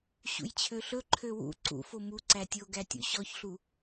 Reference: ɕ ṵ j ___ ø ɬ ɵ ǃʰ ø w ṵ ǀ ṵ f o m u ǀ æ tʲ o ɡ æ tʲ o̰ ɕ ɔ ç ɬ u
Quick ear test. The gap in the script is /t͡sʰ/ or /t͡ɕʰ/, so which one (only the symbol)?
t͡ɕʰ